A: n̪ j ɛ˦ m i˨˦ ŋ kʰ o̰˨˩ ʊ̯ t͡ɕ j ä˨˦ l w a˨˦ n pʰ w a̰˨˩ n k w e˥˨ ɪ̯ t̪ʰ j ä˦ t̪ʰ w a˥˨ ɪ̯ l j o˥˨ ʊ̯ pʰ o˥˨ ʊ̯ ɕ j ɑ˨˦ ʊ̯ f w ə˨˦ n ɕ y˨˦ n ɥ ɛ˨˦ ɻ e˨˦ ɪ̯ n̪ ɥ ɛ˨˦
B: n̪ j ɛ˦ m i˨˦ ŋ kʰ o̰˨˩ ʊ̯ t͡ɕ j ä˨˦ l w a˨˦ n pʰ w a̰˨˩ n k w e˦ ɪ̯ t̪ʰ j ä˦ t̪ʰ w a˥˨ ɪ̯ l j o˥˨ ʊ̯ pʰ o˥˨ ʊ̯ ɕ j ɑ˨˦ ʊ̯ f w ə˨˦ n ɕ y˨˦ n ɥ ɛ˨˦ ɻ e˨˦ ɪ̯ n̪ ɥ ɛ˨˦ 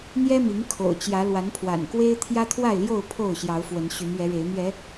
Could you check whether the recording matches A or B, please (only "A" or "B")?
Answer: B